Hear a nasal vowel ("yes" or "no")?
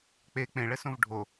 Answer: yes